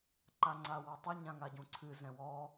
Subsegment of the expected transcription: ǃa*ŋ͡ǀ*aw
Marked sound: correct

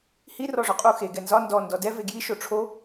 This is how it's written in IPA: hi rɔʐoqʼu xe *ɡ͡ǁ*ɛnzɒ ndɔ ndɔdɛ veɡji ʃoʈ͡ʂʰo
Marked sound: incorrect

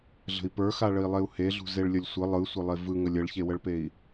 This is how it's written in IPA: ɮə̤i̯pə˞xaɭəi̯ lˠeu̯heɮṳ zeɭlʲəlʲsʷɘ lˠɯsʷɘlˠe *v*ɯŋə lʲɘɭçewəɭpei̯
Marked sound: correct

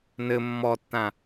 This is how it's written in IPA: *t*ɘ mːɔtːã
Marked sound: incorrect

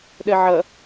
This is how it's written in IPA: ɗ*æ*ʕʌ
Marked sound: incorrect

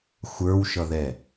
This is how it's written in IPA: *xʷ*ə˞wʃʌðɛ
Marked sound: correct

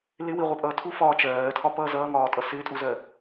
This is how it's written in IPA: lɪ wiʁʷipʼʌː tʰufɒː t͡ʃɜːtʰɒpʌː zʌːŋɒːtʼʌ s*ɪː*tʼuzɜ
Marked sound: correct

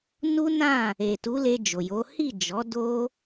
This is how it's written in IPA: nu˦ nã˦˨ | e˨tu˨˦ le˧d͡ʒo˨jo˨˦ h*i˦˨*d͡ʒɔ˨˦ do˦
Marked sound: correct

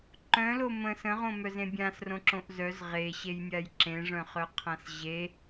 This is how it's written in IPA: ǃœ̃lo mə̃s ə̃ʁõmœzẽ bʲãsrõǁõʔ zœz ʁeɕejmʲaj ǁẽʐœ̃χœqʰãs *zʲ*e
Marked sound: incorrect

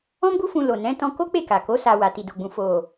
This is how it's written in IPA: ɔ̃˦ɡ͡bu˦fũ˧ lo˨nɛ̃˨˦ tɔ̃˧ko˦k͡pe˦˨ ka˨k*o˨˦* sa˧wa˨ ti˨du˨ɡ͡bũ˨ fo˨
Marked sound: correct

